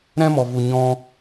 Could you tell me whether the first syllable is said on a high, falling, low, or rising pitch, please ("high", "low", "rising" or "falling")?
high